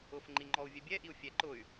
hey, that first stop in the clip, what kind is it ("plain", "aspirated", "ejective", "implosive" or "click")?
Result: click